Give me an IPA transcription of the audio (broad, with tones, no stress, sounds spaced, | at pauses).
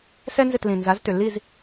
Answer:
s ɛ˥ n z ɪ˥˩ t l ĩ˩ n z a˩˥ z t ʏ˩ lː i˥˩ z